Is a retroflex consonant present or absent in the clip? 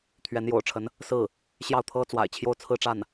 present